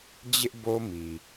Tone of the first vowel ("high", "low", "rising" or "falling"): high